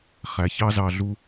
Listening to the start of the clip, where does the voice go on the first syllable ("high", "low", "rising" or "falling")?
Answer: low